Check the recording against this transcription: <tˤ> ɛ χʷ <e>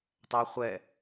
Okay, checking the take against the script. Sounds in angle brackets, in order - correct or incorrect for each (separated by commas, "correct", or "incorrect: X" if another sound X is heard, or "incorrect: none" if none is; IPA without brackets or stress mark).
correct, incorrect: ɛ